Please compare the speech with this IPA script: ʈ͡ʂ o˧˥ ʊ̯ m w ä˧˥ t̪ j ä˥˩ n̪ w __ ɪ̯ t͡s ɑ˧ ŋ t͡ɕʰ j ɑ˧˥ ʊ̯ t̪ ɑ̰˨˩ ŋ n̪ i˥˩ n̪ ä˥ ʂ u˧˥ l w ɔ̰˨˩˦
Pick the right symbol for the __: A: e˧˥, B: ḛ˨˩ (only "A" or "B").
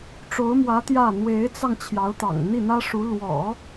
A